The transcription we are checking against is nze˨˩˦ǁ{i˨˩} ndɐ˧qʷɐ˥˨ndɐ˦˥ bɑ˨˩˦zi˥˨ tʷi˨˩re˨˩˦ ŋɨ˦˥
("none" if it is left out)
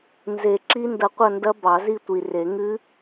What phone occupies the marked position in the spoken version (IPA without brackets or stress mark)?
i˦˥